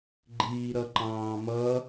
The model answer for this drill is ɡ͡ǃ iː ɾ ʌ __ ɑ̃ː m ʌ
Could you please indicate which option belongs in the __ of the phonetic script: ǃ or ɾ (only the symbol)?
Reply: ǃ